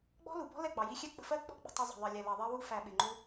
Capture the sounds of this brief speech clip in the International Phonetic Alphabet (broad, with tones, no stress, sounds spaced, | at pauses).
ɡ͡b ɔ̤˦ l u˨ b ɔ̤˦ l ɛ˦˨ ɡ͡b ɑ˨ j i˧ xʲ ɛ˦ k͡p ə̤˧ f ɜ˦ k͡p ɔ̤˦ ɡ͡b ə̤˧ tˤ ɪ˧ zˤ ə̤˨ ðˤ ɜ˨ lʲ ɛ˨ l ʌ˨ ðˤ ɜ˧ w u˧ f æ˨ ɓ ɪ˨ ŋ͡ǃ u˧